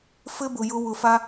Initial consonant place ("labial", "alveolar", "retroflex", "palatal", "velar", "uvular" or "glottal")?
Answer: labial